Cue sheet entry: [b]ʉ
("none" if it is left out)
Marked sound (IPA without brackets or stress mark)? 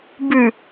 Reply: b